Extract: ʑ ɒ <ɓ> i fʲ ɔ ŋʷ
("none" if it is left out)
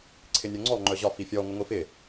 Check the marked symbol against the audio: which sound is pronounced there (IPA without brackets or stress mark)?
f